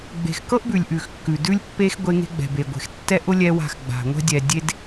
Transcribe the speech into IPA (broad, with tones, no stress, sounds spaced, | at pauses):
ɡ͡b e̤˨ x k ɤ˦ ʔ b ʉ˨ lʲ ʔ ʉ˨ x kː ʉ˨ d ʉ˦ lʲ pː e˦ x ɡʷ e˦ ŋ e̤˦ ɡ͡b ɛ̤˨ b e˨ ɡʷ e̤˨ x tː ɛ˦ ʔ ʊ˦ lʲ ɛ˦ w a̤˦˨ x ɡ͡b a̤˨ ŋʷ ɛ̤˦ dʲ ɛ˨ dʲ e˦ d